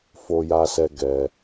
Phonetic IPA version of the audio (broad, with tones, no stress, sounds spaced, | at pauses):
f o˧ j a˧ s ɛ˧ ɡ ɛ˧